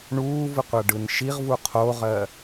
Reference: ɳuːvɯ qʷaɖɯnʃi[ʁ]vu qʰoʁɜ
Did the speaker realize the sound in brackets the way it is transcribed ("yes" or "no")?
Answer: yes